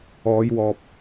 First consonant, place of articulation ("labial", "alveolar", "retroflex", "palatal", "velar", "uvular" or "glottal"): palatal